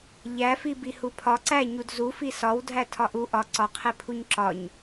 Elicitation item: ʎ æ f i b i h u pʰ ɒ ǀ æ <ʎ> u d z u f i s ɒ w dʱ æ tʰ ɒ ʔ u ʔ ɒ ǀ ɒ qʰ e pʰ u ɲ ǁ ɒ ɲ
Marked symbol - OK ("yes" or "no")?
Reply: no